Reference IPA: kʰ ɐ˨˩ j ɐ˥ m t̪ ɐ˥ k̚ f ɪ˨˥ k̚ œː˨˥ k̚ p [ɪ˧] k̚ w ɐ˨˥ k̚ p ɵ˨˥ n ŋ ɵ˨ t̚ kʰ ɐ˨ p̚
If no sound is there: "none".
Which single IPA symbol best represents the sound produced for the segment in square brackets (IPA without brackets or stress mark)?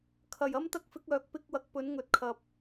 ɪ˧